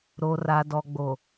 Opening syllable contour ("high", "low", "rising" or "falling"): low